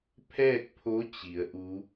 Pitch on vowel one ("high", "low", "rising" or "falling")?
falling